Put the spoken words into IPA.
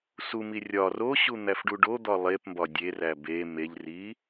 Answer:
sumi rʲɒ roɕu n̪æfɖuɖod̪ɒ lˠepmbɒ dʲeræ be meʎri

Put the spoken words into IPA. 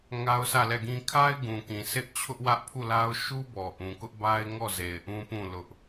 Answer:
ŋa˦ʊ̯sʰä˦˨lɛ˦˨ɡĩ˦ kʰa˦ɪ̯ ɡũ˨kĩ˨ sʰɪ˦ʔ t͡ɕʰʊ˦ʔwä˦ʔpʰu˦˨la˦ʊ̯ ʃu˦bɔ˨ ʔũ˨kʊ˦ʔba˦ɪ̯ŋɔ˦˨ ze˨ɪ̯ʔũ˦pũ˦˨ lʊ˦ʔ

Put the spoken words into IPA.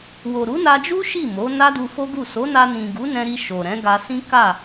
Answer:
wo˨ɾu˨˦na˧d͡ʒu˦ ʃi˦˨mo˨˦ na˦du˧fo˦ɡu˦˨ so˨˦na˧nĩ˨ ɡu˨˦nɛ̃˧ɾi˧ ʃo˨ɾɛ̃˨˦ ɡa˧sĩ˦ka˦˨

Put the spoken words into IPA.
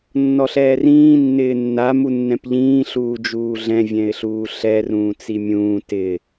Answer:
nːɔɬɛːrĩː nːɪːnːa munːɛ̃pʎĩː ɬuːd͡ʒuːɮɛ̃ vʲɛ̃ɪ̯ɬuːɬɛ rũːt͡simʲũː tɪ

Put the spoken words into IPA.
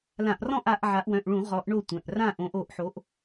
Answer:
lã˧˩˧ʔrɔ̃˥˨ʔ a˨˦ʔʕa˨˦ʔ wœ̃˩˧˩ʔɭũ˧˩˧ ʁɔ˨˦ʔɳo˥˨tʷœ̃˩˧˩ʔ rã˥˨ʔõ˨˦ʔo˨˦ʔ ħo˨˦ʔ

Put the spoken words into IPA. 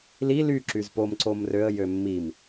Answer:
li ly ǁyzpomǀom røə̯jø mːim

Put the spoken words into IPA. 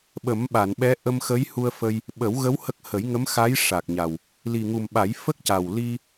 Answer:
ɓə˨˩˦mɓa˨˩˨nɓɛ˧˥ ʔə˧mxə˧˥jhu˧ə̯ fə˧j | ɓə˨˩˦wɣə˧˥w hə˦˥k̚ hə˨˩˦jŋə˧˥mxa˧˥j ʂa˨˩k̚ɲa˨˩w | li˨˩ŋu˨˩mɓa˨˩˦j fə˦˥k̚ca˨˩w li˧

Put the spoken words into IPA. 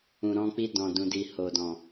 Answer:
ũ˨ɾɔ̃˧ k͡pi˧dɔ̃˨dũ˨di˨ ho˨dɔ̃˨

